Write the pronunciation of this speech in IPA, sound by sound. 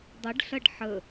dˤ ə ɖ ɬ ɐ ɖ ħ ə

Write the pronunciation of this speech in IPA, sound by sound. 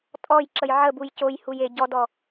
tʼ ɔ j ǁ ə j ʕ ə b u j c o j h u j e ɟ ɔ d ɔ

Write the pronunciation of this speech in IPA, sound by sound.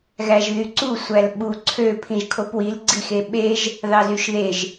ɣ æ ʒ ð y ǀ u sʷ æ l ɓ u ǀʰ ø pʰ ĩ ʒ kʰ o p w i l ɡ͡ǀ i x e ɓ e ʒ | ð ɑ z y ʃ ð e ʒ

